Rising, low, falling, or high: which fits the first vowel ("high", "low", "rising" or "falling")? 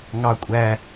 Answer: high